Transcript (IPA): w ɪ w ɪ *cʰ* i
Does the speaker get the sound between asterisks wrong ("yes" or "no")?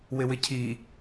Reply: no